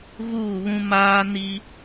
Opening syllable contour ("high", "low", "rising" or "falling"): falling